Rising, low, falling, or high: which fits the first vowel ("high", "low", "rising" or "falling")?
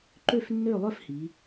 falling